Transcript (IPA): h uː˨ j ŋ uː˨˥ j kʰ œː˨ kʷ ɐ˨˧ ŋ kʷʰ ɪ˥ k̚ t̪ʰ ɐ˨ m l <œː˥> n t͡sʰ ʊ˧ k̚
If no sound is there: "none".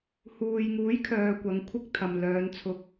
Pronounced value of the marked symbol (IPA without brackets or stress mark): œː˨˧